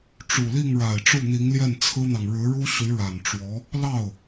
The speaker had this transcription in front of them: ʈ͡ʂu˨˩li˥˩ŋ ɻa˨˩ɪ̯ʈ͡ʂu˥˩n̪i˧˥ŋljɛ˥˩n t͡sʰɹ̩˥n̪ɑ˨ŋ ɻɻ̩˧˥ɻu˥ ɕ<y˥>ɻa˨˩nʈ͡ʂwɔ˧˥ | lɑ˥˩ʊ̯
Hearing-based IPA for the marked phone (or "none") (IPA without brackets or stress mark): y˧˥